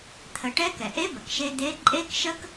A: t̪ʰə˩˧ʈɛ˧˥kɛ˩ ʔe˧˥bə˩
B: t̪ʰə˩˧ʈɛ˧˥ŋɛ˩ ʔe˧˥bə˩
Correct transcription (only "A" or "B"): A